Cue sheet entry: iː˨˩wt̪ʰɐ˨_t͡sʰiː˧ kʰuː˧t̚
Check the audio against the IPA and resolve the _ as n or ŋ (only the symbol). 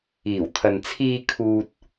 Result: n